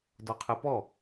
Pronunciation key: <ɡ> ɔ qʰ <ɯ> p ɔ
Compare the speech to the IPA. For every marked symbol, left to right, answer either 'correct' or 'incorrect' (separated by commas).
incorrect, correct